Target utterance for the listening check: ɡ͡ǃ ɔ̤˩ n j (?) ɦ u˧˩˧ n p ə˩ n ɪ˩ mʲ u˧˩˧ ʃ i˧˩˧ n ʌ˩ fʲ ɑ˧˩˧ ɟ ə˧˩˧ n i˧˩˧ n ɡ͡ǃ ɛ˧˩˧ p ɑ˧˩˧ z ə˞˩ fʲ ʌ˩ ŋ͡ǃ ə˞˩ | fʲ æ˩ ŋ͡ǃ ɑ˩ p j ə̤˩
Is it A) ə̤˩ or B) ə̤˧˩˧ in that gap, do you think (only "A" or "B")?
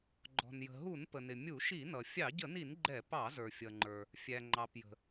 A